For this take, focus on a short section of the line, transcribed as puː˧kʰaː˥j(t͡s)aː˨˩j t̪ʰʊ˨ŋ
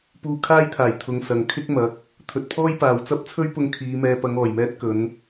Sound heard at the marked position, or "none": t̪ʰ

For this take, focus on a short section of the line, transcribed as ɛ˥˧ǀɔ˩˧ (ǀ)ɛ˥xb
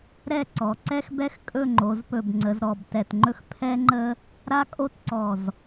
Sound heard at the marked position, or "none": ǀ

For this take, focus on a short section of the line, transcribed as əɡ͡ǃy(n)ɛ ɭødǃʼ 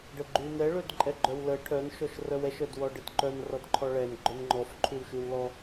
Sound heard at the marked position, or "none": n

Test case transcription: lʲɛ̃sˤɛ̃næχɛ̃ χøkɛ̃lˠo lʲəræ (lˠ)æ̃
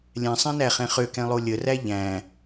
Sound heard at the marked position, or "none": ʎ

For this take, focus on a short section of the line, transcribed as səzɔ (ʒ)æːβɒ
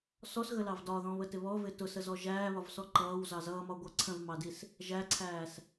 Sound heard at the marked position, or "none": ʒ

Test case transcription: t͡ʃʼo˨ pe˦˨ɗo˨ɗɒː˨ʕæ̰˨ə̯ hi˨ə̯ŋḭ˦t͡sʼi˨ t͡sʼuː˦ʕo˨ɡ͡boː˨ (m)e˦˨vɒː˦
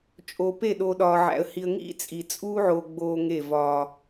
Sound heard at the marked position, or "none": ŋ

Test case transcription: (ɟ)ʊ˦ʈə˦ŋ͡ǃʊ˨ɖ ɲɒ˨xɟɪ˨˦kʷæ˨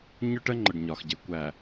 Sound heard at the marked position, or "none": ɲ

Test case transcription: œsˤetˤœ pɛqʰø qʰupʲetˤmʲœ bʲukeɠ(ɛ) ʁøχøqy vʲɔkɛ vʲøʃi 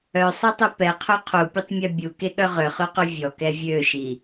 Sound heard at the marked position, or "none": œ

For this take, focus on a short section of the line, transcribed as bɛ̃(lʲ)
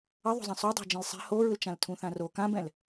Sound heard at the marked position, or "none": l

